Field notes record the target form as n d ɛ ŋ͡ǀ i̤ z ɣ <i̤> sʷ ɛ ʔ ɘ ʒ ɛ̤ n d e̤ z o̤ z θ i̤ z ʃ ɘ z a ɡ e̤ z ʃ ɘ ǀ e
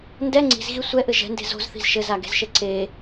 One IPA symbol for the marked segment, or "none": i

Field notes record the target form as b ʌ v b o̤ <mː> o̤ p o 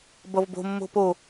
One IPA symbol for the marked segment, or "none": mː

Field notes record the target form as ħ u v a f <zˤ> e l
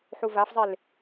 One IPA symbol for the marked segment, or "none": zˤ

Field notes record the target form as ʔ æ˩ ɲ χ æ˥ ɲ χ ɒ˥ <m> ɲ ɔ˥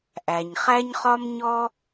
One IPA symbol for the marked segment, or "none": m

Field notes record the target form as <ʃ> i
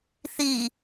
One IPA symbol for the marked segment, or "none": θ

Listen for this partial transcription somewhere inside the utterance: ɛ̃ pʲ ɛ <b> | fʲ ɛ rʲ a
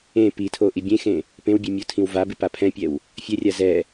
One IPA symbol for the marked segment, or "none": w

